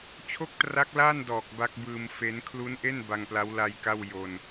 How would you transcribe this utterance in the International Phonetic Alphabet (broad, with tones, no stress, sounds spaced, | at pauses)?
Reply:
t͡ɕʰ o˥˩ k̚ t r a˦˥ k̚ l aː˥˩ n d ɔː˨˩ k̚ b a˦˥ k̚ b ɯː˧ m f e˦˥ n kʰ l u˦˥ n ʔ e˥˩ n b a˧ ŋ p l a˦˥ w l a˧ j k a˥˩ w j o˧ n